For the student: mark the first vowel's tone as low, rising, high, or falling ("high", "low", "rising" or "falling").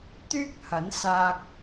high